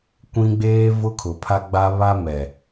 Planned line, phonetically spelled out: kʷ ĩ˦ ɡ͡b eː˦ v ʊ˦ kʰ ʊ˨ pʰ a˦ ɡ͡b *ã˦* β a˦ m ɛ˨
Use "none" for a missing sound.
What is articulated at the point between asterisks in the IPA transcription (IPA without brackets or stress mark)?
a˦